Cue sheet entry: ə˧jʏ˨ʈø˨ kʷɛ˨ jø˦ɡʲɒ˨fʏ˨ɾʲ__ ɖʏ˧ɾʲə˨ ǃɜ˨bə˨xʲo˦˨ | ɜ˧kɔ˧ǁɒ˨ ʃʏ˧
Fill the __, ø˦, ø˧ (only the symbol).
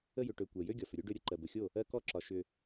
ø˦